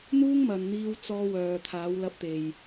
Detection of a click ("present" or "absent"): absent